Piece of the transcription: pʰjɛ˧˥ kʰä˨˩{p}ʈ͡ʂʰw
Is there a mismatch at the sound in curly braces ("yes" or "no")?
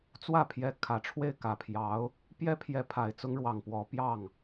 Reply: yes